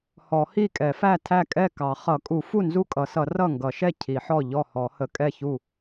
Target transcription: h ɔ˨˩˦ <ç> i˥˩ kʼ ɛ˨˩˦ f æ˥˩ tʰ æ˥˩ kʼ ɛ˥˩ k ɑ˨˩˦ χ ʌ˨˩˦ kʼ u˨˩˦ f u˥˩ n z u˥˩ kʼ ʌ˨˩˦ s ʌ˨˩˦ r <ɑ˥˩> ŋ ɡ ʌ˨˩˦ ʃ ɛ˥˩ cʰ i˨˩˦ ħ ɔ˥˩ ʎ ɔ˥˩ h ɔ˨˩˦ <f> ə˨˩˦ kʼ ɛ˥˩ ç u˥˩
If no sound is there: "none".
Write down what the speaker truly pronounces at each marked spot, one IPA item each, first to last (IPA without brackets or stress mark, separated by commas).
h, ʌ˥˩, h